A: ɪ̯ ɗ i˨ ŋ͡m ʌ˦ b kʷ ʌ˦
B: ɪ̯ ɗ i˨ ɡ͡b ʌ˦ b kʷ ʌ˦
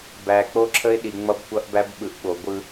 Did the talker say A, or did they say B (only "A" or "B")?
A